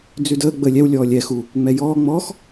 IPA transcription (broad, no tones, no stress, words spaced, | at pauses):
d͡zʉdəː ɡ͡bəːlʲɛw lʲɔːlʲɛ xu | ŋ͡mɛjɔː ŋ͡mɔːx